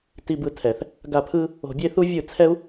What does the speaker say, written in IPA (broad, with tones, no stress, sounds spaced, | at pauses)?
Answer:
t i˧ b ɯ˨ tʰ ɛ˨ θ | ɡ a˦˨ pʰ ɯ˦ | o̤˧ bʲ e˦ θ u˦ vʲ ɯ˦˨ t͡sʰ ɛ˦ u̯